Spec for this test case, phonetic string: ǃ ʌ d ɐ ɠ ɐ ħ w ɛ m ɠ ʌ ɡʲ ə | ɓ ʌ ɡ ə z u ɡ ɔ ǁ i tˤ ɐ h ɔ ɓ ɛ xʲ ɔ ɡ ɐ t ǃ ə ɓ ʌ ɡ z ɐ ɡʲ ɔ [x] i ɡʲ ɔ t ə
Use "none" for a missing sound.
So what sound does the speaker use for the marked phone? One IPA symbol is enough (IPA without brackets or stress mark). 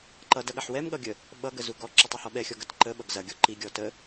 ǃ